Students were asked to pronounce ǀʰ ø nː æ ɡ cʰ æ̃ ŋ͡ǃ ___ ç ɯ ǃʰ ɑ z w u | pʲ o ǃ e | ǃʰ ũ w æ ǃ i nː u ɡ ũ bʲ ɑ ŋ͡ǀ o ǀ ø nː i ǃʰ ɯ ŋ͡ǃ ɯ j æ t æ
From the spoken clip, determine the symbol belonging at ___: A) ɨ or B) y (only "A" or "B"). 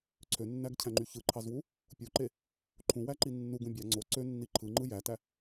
B